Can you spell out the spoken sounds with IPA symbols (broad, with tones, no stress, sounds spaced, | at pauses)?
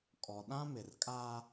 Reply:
kʼ ɔ˨ ɗ ã˦ m ɪ˨ r kʼ a˦